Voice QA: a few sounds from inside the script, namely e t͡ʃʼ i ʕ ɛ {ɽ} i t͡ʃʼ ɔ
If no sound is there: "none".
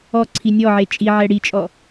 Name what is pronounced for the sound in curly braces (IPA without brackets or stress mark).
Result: ɽ